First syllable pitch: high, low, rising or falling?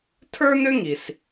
high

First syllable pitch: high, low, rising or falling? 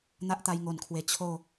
high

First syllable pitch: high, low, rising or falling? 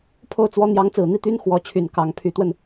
falling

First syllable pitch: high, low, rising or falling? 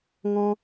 high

